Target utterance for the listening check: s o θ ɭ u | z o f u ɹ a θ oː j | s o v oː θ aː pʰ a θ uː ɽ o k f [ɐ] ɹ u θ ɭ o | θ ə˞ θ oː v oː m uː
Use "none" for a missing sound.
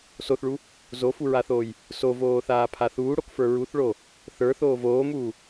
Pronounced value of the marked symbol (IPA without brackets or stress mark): ə˞